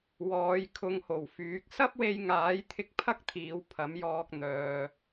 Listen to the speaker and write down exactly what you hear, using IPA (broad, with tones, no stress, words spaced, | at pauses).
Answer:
wɔː˨˧jkʰʊ˧ŋho˨˩wfyː˨˥k̚ sɐ˥p̚we˧jŋaː˨˥j t̪ʰɪ˥k̚ pʰɐ˥k̚t̪ʰiː˨˧w pʰɐ˨˥mjɔː˧k̚ n̪œː˨